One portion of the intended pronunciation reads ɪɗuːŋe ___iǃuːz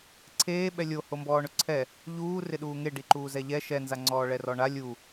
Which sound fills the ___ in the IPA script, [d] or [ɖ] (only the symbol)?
ɖ